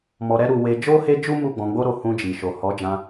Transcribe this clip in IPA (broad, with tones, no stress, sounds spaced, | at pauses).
m ɔ˧ ɾ ɛ˦ ɾ u˧ w e˧ d͡ʒ o˦ h e˦ d͡ʒ u˦ m u˦˨ ɡ͡b ɔ̃˨˦ ɡ͡b o˦ ɾ o˧ h ũ˧ d͡ʒ i˨ ʃ o˨ h ɔ˨˦ d͡ʒ ã˧